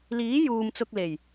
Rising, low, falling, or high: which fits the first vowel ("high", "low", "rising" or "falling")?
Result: rising